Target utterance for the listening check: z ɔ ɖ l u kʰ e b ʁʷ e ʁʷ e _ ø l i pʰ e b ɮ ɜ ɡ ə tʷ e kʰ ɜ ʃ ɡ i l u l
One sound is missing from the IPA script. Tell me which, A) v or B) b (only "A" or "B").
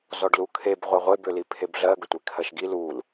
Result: B